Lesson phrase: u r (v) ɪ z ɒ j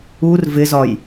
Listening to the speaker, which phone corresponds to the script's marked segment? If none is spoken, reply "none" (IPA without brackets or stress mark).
v